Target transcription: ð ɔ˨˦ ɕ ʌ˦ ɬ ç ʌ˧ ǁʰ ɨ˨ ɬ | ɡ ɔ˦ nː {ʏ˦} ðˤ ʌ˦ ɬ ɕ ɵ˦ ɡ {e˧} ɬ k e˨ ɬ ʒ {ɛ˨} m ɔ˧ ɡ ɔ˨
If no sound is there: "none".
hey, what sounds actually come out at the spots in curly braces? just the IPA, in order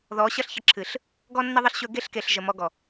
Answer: ə˦, e˦, ə˨

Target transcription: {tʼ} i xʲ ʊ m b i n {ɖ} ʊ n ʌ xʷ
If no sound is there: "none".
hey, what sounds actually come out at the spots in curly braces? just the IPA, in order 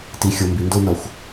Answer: t, d

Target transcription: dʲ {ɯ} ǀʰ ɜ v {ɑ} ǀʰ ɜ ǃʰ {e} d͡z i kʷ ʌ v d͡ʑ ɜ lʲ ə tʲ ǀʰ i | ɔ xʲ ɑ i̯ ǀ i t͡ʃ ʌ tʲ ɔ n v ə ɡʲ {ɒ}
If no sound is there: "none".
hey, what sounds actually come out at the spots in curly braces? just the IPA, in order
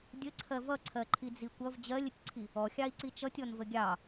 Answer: ə, ʌ, i, ɑ

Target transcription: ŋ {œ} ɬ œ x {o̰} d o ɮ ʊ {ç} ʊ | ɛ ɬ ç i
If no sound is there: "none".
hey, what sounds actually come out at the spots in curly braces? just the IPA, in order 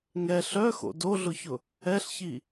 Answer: ɛ, o̰, ç

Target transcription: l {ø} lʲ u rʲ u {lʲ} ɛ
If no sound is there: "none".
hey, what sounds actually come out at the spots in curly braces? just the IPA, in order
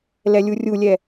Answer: ɛ, lʲ

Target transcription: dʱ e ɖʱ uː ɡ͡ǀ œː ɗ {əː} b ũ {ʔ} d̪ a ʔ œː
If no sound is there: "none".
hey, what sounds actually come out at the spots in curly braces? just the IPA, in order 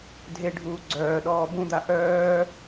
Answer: ɔː, none

